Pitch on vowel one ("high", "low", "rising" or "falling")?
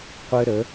high